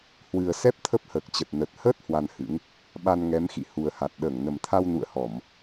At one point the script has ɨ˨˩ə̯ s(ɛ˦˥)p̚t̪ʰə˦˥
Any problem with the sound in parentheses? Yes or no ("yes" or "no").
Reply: no